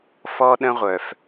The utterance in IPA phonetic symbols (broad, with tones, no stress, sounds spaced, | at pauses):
f ɔ˦ ɗ ə̃˦ ʁʷ œ˨ f